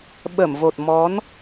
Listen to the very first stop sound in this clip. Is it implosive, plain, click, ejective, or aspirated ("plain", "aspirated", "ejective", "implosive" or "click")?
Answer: implosive